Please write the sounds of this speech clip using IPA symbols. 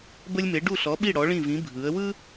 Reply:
bə˧lʲme˩˧ ɖu˧˩ɬɔ˩˧ɓi˧˩ ɽɔ˩˧ɭĩ˧˩vĩ˩˧ bʱɯ˩˧ə̯wɯ˥

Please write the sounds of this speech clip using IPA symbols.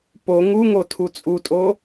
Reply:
po ŋuŋo tʰut͡sʼutʼo

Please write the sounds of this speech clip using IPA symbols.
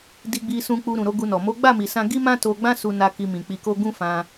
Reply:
di˧ɡ͡bi˧sũ˧k͡pu˧ ɾũ˨ɾo˨˦ɡu˧nɔ˨ mo˨˦ɡ͡ba˦˨mi˨sã˧ ɡi˦mã˦to˧ɡ͡bã˦ su˧na˧ ki˧mĩ˨ k͡pi˧ko˦ ɡũ˦fã˧

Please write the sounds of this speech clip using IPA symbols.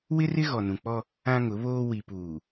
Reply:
wɪ˦rɪ˦ ɣɔ˨nũ˨k͡pɔ˦ | ã˦ŋʊ˨˦βoː˦ wi˨puː˨

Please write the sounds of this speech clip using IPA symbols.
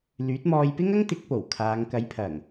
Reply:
lyː˨˥t̚mɔː˧jpɪ˥ŋ ɐ˥ŋt̪ɪ˨˥k̚po˨˩w kʰaː˨˧ŋ kɐ˨˥jpʰɐ˨˩ŋ

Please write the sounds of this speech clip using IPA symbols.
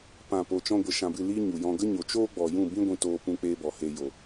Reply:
pã˦˨po˧ t͡ʃɔ̃˦ɡʷə˧ʃã˧bɨ˦˨ li˦ɲu˨jɔ̃˧ ɡə˦ɲo˨t͡ʃoː˦ɡ͡bɔ˨ jũ˦˨bĩ˦ɡʷĩ˧toː˧ pũ˦k͡peː˦bɔ˨he˧ jo˨

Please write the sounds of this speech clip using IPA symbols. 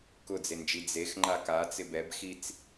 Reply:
kʊd͡zend͡ʒi d͡zex ŋ͡ǃakat͡sɪ bɛbxit͡s

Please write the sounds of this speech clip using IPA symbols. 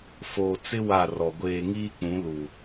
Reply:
foː˨t͡sɪ˦ wa˦˨rɔ˨ ɡʷeː˨ŋiː˦k͡pũ˨˦ lu˨

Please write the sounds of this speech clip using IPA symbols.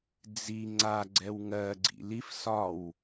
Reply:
d͡zi ŋ͡ǀa ɡ͡ǀɛwŋɜ ɡ͡ǀḭlif sɒw

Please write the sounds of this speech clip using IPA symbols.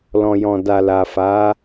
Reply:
lɔ̃˨jɔ̃˨da˨ la˨fa˨˦

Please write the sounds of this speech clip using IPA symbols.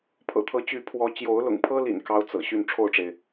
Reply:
pʰɤ̰˨˩t̪ʰɤ˨˦ t͡ɕy˨˦ pʰwɔ˨˦ t͡ɕjo˨˦ʊ̯lʊ̰˨˩ŋpʰɤ˦lḭ˨˩n kɑ˦ʊ̯t͡sɤ̰˨˩ ɕy˥˨n ʈ͡ʂʰo˥˨ʊ̯ʈ͡ʂe˩ɪ̯

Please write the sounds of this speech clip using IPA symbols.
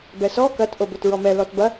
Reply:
bɛsɔ kɐt ʔobotɹɔmɛ lɔtbɐ

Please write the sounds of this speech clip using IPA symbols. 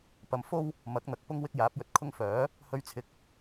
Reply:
pɐ˧m fo˥w | mɐ˨˥k̚n̪ɐ˧k̚pʊ˥ŋ wɪ˥k̚jaː˨˥p̚jɵ˧t̚kʰʊ˥ŋ fœː˨˥ | hɵ˧ɥt͡sʰɪ˨˥k̚

